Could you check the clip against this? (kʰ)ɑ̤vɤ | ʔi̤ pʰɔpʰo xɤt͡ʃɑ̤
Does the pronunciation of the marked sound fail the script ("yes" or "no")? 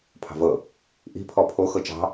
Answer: yes